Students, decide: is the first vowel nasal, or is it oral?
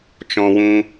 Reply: nasal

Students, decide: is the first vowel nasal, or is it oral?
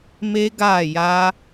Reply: oral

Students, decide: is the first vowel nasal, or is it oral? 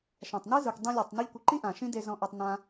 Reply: nasal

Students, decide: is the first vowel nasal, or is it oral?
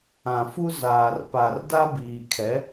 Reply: nasal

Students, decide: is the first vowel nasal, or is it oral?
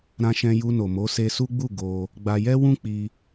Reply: nasal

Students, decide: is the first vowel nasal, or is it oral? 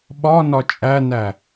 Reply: oral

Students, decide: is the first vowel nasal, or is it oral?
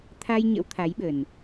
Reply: oral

